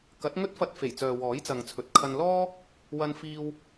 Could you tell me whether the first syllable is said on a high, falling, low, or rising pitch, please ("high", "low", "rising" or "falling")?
rising